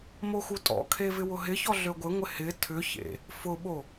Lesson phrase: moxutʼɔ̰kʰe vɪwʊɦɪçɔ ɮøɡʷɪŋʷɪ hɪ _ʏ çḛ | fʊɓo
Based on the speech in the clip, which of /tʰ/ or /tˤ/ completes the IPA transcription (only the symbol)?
tʰ